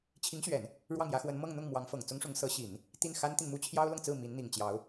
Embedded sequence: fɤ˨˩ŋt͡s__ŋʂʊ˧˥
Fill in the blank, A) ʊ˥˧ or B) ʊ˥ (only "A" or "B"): B